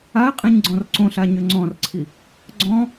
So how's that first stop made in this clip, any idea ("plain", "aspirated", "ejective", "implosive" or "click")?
ejective